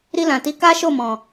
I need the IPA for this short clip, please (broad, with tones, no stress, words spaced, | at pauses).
ɾi˧lã˨ti˨˦ ka˦ʃo˦˨mɔ̃˨